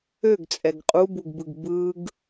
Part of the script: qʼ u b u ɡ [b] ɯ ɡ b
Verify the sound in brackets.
correct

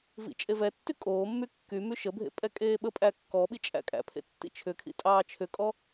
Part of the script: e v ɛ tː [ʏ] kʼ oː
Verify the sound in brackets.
incorrect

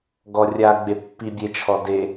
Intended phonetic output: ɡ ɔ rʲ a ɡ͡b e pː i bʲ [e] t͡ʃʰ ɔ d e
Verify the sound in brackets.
correct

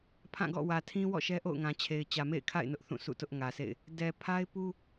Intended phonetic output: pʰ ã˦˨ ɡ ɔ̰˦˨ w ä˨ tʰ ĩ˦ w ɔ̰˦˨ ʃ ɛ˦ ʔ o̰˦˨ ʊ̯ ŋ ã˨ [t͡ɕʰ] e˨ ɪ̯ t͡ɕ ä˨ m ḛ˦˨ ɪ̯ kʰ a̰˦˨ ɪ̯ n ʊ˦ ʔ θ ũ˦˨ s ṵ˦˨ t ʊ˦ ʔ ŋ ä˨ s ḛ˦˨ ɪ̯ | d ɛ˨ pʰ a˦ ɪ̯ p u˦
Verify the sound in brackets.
correct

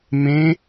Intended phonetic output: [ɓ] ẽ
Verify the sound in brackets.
incorrect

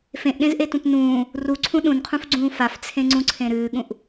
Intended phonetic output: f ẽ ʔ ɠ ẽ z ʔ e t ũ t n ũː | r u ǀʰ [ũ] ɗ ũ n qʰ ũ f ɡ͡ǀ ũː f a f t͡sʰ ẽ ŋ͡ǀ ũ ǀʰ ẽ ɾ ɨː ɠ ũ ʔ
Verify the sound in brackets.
correct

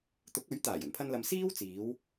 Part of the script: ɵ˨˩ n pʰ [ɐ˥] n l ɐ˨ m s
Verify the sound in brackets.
incorrect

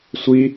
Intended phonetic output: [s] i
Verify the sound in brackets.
incorrect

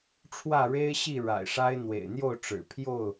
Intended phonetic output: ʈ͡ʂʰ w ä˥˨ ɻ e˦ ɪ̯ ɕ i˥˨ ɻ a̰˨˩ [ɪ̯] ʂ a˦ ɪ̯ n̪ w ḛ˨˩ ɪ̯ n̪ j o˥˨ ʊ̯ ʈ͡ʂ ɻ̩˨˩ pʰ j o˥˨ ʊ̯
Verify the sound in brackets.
correct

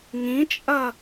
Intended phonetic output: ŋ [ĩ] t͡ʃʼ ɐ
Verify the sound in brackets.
correct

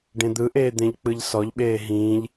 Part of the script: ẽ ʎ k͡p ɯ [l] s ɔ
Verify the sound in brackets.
incorrect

